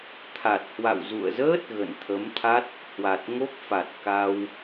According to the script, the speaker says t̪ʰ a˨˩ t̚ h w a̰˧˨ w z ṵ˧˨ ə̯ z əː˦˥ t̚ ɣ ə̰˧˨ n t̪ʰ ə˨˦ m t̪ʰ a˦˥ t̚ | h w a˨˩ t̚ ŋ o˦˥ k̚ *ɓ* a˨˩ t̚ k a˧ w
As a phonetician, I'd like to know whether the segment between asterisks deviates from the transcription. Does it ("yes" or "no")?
yes